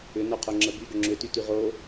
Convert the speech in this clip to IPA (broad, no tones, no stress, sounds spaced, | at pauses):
ʏ n o qʰ o ŋ͡ǁ ə b y ɡ ʏ ŋ͡ǁ ʏ t y t y ʁ o